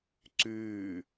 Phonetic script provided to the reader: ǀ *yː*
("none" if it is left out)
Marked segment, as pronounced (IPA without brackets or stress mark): yː